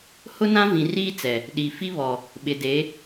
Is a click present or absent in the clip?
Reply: absent